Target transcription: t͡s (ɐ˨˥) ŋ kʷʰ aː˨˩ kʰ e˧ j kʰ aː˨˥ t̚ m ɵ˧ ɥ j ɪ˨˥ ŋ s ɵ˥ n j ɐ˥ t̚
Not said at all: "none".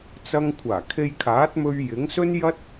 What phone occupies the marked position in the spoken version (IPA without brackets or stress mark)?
ɐ˧